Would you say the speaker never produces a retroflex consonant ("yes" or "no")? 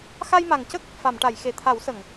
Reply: no